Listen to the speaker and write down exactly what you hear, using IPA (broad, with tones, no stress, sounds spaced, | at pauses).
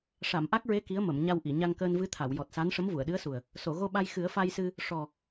ʂ a˨˩˨ m ʔ a˦˥ k̚ ɹ e˧˥ k i˧˥ ə̯ m ə˨˩˨ m ɲ a˧ w ʔ i˨˩˨ ɲ a˧ ŋ k əː˧ n v ɨ˧˥ t̪ʰ a˨˩˨ w j ɔ˨˩ t̚ s a˧˥ n ʂ ə˧˥ m v u˨˩˨ ə̯ ɗ ɨ˧˥ ə̯ s u˨˩ ə̯ | s o˨˩˨ ɣ o˧ ɓ a˧ j x ɨ˨˩˦ ə̯ f a˧ j s ɨ˧ | ʂ ɔ˨˩